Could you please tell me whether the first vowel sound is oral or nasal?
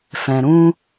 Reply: nasal